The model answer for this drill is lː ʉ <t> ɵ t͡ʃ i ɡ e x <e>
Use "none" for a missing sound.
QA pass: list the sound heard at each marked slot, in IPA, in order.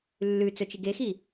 t͡s, i

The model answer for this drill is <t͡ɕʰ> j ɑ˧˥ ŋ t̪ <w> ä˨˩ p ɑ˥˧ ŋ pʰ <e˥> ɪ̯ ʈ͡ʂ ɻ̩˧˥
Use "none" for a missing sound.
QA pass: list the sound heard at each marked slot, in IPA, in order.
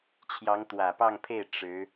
t͡ɕʰ, w, e˥˩

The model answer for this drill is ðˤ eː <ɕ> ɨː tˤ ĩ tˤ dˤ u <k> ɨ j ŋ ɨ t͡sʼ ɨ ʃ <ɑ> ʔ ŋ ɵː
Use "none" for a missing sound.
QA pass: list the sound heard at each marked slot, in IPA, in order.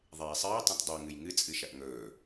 sˤ, ŋ, ɐ

